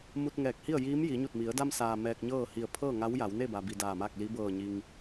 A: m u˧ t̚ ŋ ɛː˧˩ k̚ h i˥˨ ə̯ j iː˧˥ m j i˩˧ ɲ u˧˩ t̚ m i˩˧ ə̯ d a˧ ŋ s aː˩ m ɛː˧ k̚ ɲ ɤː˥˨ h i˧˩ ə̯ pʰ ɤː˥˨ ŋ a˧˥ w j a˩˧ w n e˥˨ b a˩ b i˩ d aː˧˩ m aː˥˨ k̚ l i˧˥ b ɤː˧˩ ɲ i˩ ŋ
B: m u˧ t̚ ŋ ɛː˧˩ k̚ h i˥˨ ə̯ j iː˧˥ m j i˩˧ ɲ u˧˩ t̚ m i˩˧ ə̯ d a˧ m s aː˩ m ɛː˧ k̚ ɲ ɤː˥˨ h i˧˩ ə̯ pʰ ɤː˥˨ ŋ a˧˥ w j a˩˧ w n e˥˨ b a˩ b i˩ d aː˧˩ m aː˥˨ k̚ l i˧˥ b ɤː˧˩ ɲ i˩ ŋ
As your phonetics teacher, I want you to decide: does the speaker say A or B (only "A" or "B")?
B